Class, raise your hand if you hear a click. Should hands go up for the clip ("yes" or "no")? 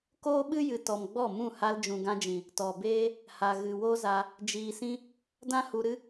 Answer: no